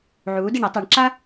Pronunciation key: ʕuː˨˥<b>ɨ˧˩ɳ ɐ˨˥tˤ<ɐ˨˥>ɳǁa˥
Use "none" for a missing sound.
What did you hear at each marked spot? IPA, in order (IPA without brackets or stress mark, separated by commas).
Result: d, a˨˥